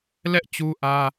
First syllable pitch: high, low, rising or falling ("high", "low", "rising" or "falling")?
high